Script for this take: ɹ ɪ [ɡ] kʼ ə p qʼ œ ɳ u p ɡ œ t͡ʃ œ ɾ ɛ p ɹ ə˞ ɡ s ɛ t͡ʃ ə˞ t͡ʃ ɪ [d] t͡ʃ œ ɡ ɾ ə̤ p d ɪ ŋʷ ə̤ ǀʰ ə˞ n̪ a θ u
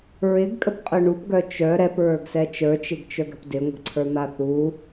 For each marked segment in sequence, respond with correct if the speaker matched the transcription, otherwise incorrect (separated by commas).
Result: correct, incorrect